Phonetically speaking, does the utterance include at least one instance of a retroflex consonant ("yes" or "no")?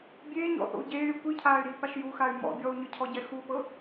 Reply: no